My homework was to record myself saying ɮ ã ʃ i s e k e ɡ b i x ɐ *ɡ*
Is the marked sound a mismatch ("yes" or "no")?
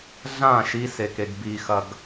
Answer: no